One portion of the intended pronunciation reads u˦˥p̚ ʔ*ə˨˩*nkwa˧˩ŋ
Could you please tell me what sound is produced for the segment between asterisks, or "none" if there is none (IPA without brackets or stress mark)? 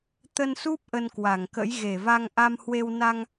ə˧